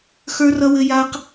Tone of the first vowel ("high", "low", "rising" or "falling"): high